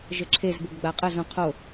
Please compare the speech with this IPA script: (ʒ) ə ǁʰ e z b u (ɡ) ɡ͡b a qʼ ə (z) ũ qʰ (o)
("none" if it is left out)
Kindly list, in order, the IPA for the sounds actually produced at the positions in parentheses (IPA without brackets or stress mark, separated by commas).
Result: ʒ, ɡ, z, o